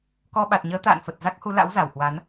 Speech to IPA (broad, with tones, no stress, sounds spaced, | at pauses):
k ɔ˧ ɓ a˨˩ t̚ ɲ əː˨˦ t̪ a̰ː˧˨ n f ə˨˩ t̚ z a˦˥ k̚ h u˨˦ l a̰˧˥ w z a˧˩ w h w a˨˦ n